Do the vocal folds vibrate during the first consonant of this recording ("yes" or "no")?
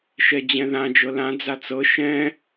no